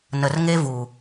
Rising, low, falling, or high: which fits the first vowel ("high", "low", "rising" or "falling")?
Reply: low